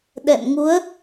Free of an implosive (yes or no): no